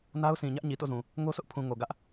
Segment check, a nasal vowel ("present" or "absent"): present